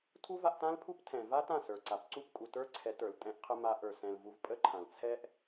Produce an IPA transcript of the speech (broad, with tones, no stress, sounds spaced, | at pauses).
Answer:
tʰ u˦ v a˧ ʔ t ã˦ l pʰ u˦ p tʰ ɛ̃˨ v a˦ t ã˦˨ s ə˞˨ ǀ a˨ p ǀ u˦˨ p kʼ u˨ t ə˞˦ ǀʰ ɛ˨˦ t ə˞˨ l tʼ ɛ̃˦ ʔ qʰ ə˦ m a˧ ʔ ə˞˨ s ɛ̃˨ l v u˧ v pʼ ə˦ ǃʰ ã˨ l t͡sʰ ɛ˦ ʔ